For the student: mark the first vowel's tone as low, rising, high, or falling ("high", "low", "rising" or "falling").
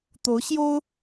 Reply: rising